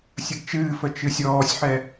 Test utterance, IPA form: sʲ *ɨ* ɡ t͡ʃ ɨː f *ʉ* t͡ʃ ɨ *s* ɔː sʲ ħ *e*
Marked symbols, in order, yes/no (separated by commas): no, no, no, no